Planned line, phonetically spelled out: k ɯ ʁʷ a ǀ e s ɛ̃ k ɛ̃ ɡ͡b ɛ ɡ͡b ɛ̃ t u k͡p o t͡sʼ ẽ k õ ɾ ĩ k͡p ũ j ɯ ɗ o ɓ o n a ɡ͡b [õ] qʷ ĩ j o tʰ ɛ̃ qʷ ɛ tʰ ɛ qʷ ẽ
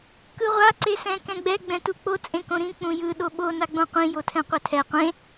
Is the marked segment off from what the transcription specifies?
no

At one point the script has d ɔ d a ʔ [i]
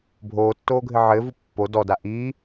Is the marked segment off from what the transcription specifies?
yes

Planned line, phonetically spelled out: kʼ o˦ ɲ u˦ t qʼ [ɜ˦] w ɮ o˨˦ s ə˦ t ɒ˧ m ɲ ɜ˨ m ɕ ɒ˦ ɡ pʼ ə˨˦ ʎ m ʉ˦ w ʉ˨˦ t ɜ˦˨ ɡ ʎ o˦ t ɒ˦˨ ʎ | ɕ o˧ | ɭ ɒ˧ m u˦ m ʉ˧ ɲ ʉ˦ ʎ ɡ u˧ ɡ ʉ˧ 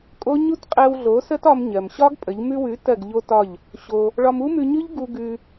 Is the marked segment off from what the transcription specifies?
yes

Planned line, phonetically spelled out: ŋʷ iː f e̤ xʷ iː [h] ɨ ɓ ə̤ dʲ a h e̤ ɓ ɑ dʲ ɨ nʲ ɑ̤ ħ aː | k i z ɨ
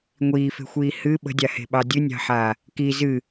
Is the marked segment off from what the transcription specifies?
no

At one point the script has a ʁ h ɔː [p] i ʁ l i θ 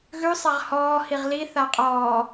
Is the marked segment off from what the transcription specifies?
yes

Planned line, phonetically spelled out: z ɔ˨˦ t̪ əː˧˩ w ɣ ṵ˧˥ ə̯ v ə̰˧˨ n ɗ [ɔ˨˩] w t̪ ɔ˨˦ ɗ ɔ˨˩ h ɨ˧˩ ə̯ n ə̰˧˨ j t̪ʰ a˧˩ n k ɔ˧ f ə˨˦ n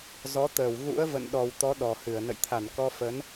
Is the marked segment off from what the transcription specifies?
no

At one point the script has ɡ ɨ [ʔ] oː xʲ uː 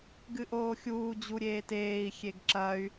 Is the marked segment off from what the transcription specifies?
no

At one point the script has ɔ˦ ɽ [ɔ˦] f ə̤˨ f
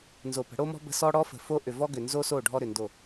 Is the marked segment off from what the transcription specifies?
no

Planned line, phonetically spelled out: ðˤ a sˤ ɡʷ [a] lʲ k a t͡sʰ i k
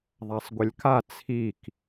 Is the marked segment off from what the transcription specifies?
yes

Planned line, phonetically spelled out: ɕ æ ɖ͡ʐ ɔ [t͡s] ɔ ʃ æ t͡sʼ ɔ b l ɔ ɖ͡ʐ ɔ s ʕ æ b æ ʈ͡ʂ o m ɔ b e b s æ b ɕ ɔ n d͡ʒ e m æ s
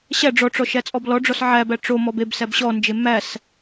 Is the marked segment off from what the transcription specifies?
yes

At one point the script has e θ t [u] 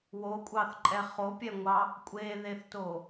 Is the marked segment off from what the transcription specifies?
yes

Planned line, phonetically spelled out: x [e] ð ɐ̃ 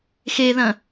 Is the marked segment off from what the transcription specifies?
no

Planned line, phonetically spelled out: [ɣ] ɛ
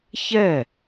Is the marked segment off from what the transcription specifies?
yes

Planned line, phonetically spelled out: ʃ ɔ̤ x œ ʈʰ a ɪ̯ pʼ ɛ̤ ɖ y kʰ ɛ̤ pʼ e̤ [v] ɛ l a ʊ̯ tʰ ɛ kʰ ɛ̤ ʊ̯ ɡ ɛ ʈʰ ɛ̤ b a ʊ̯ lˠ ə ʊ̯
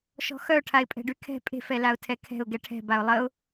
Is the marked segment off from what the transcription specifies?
yes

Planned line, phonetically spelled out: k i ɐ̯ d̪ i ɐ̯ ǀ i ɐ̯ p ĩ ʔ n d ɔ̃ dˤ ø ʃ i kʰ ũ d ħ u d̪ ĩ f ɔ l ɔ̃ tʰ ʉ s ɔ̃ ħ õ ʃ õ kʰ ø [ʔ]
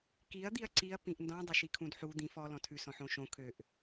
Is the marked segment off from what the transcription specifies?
no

